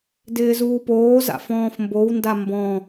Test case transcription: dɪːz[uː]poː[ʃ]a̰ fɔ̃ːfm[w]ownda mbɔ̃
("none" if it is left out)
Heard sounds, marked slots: uː, z, b

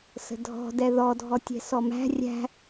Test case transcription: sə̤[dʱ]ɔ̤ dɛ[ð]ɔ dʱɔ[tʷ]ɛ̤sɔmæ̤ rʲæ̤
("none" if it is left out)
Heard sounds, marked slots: dʱ, ð, tʲ

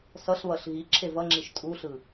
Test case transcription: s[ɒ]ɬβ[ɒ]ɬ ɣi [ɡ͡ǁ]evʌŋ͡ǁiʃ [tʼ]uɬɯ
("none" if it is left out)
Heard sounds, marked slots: ʌ, ʌ, ǁʰ, tʼ

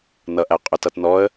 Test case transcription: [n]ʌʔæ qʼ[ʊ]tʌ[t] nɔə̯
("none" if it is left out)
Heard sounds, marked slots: n, ʊ, t

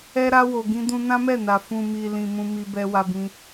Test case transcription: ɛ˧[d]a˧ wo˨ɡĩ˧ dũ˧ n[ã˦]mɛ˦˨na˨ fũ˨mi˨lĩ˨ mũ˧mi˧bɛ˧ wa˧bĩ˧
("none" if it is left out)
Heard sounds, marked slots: ɾ, ã˦

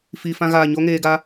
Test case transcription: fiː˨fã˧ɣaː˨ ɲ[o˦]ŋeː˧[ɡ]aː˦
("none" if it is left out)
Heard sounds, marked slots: o˦, ɡ

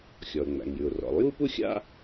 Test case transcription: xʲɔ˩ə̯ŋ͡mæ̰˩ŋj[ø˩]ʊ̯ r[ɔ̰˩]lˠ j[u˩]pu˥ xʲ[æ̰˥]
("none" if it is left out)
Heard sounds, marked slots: ʉ˩, ɔ̰˩, u˥, a̰˥

